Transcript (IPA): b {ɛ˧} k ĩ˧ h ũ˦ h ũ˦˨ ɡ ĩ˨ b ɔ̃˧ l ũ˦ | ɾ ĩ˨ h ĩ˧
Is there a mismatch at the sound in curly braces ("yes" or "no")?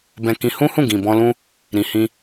yes